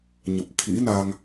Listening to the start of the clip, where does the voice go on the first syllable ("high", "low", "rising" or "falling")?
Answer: low